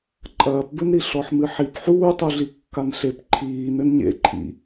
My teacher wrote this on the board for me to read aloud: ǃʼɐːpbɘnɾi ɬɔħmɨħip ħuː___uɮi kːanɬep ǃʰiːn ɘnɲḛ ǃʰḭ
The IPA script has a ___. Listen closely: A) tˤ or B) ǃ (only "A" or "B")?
A